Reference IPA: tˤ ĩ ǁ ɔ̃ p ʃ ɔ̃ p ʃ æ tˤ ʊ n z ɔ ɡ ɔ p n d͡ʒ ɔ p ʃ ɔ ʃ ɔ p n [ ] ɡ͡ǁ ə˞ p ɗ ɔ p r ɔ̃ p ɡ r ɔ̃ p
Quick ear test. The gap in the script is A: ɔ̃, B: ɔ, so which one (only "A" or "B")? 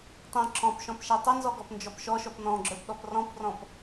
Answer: A